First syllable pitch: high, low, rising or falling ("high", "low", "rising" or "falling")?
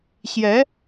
rising